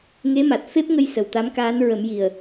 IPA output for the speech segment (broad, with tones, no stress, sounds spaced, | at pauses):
ŋ e˧˥ m a˨˩ t̚ f e˦˥ p̚ ŋ ə˧ j s ə˨˩ w t̪ a˧˥ m k aː˧˥ n ɹ ə˨˩˦ m j i˨˩ ə̯